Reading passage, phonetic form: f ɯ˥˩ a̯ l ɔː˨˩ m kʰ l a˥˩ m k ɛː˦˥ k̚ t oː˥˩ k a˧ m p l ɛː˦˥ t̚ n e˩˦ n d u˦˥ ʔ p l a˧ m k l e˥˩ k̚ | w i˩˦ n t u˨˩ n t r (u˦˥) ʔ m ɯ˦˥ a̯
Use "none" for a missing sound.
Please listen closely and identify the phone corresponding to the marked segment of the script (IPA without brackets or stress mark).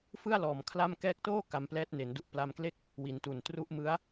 u˦˥